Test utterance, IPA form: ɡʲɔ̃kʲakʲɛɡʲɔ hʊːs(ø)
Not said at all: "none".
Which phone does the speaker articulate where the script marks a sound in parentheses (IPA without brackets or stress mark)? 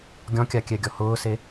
e